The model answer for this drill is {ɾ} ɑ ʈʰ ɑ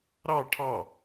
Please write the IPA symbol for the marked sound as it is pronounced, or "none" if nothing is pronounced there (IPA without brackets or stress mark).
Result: ɾ